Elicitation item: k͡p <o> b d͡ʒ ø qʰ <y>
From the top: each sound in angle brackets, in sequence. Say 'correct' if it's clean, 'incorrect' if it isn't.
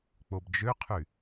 correct, correct

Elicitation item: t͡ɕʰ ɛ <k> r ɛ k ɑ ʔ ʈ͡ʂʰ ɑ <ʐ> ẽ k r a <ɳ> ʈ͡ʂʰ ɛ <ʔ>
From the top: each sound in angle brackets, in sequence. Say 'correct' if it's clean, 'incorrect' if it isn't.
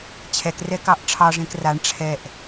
correct, correct, correct, correct

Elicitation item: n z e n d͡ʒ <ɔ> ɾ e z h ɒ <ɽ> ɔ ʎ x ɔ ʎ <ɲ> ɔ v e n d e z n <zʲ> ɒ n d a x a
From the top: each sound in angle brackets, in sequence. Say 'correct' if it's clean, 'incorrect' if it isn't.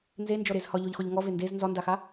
correct, incorrect: ʎ, incorrect: ŋ, incorrect: z

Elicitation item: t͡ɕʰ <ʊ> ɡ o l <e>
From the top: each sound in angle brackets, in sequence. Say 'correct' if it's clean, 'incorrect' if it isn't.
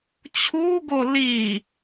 incorrect: u, incorrect: i

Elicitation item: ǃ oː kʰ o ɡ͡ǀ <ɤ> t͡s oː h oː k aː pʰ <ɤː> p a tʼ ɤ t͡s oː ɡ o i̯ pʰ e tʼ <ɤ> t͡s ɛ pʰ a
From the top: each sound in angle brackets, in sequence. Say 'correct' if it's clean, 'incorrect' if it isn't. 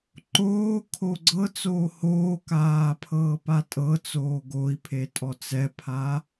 correct, correct, incorrect: ɔ

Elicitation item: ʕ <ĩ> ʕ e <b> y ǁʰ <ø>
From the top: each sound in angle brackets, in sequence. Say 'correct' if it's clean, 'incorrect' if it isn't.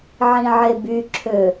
correct, correct, correct

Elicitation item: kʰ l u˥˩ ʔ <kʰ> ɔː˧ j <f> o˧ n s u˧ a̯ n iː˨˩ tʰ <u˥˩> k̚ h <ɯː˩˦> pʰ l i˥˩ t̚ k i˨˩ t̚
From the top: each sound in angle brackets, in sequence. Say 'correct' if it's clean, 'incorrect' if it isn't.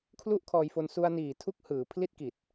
correct, correct, correct, correct

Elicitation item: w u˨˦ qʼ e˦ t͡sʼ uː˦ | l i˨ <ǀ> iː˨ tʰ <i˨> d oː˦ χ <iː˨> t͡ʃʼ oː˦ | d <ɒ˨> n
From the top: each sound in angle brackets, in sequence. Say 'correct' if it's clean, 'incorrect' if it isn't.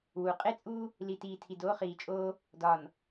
incorrect: t, correct, correct, correct

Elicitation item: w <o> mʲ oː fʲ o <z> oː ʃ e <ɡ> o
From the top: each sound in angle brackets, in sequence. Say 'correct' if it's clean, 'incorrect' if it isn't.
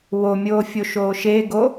correct, incorrect: ʃ, correct

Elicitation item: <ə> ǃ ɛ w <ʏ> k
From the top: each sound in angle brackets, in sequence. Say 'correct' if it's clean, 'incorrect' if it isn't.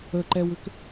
correct, correct

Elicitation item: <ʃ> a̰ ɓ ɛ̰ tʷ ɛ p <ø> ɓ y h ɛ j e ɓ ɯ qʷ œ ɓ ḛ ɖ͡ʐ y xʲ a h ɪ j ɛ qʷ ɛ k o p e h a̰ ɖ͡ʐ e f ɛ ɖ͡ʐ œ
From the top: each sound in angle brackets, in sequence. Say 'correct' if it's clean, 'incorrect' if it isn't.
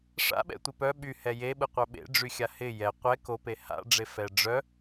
incorrect: ʂ, incorrect: œ

